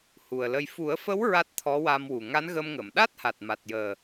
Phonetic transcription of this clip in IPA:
hu˨˩ə̯lə˧j fu˨˩˦ə̯fə˧˥w ɹa˦˥t̚t̪ʰɔ˧˥wa˧mwu˨˩ ŋa˧˥nɣə˧mŋə˨˩˨m ɗa˦˥t̚ha˨˩t̚ma˨˩t̚ jəː˨˩

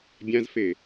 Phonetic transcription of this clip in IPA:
bʲãzfe

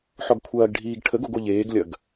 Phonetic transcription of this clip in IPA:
ħɔɡkʷʰɐːɡɖʱiːɡ ʈʰəɡ oɡoʎeːɡlʲɐɡ

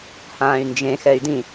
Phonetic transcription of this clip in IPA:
hãːy̯nd͡ʒẽ xɛy̯dĩ

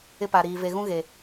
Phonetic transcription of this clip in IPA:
ɪ˦pa˨ɾiː˨ ve˨ɣũ˦ɣe˨

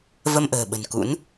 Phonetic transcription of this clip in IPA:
və˧mʔə̤ː˨˩ɓə̤˨˩nkṵ˧˥n

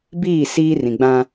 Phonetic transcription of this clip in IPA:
biː˦˨ siː˦rĩ˨ɡ͡bã˦

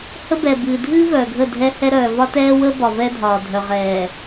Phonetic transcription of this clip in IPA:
hə˦bɛ˨bɨː˨ dʱɨː˦ vœː˨ɡʱə˦˨dʱɛ˦hɛ˦ ɾœː˨vɒ˦tɛː˦wəː˦ bɒ˨vɛ˦dʱɒː˨ dʱœ˨ʁɛː˨

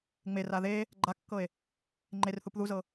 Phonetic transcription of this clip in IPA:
ŋ͡mera ðe | ɡ͡ǃakːɤe̯ | ŋ͡ǃerθup ðuzɤ

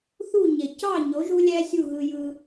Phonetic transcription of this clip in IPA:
θu˥˩ ɲe˩cɑ˥˩ɲo˩˥ ʒu˥lʲæ˥sʲu˥˩ ɣɯ˧jɯ˧

